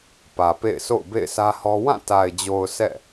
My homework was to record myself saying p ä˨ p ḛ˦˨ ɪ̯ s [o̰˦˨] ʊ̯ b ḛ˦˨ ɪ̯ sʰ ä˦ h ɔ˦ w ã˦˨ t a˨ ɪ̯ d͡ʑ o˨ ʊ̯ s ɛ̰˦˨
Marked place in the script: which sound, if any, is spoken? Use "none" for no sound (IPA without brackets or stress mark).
o̰˦˨